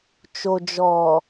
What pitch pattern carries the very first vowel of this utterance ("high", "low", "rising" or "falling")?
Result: low